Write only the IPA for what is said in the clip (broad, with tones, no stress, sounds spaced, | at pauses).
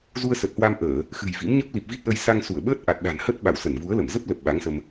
z u˧ ə̯ s ə˨˩ t̚ h w a˧ m ʔ əː˧˩˨ | x ɨ̤˨˩ j v ḭ˧˥ m ɲ ə˦˥ p̚ l i˨˩ p̚ v i˦˥ t̚ ʔ ə˧ j s a˧ ŋ s u˧˩ ə̯ ɓ əː˦˥ t̚ ʔ a˨˩ t̚ ɗ a̤˨˩ n h ə˦˥ t̚ ɓ a̰˧˨ w s ə˧˩ n v u˨˦ ə̯ l ə˧˩ m z ə˦˥ p̚ l ə˨˩ p̚ ɓ a˨˦ ŋ s ə˧ m